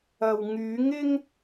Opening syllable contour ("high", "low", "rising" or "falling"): low